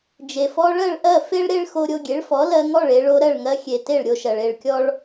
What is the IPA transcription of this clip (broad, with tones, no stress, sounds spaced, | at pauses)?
d͡ʒ e˩ f ɔ˧ ɭ ɜ˥˩ ɭ ʔ ɜ˥˩ f e˥ ɭ ɾ e˥ ɭ x o˧ ɾʲ o˧ ɡʲ e˩˥ ɭ f ɔ˩˥ l ɜ˧ ŋ ɔ˥˩ ɭ e˧ ɭ o˧ ɾ ɜ˥˩ ɭ ŋ ɜ˧ xʲ e˩ t e˥˩ ɭ ɾʲ o˧ ʃ ɜ˩ ɭ e˥˩ ɭ kʲ ɔ˥ ɭ